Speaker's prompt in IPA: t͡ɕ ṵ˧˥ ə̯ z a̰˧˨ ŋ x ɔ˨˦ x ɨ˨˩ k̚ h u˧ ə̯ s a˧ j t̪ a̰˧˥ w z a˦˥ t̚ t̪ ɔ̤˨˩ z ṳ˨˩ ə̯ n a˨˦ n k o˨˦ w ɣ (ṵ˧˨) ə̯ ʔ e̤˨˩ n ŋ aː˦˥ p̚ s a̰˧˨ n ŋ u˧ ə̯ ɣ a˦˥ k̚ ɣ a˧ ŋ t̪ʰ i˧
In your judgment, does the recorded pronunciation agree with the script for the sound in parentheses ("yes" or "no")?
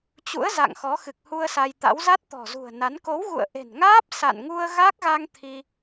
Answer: yes